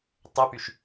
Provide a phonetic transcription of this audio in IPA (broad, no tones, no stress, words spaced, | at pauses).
tˤøpyʃ